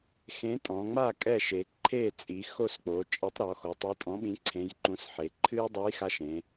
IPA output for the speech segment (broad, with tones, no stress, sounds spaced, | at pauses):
x ẽ˨˥ tʼ ɔ̃˩˧ ŋ͡m a˥˩ kʼ ɛ˥˩ ʃ e˩˧ ǃʰ e˥˩ t͡sʼ i˩˧ x o˥˩ s k͡p o˩˧ t͡ʃʼ e˨˥ tˤ ɾ ɔ˩˧ x o˩˧ tˤ e˨˥ tʼ ɔ̃˨˥ ɓ ĩ˨˥ ǀʰ ẽ˨˥ j ǃ ũ˨˥ s ħ e˩˧ ǃʰ ɨ˦ j dˤ ɨ˨˥ j x a˨˥ ʃ ẽ˩˧